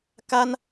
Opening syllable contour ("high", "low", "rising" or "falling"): high